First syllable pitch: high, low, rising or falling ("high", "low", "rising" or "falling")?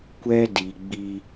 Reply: high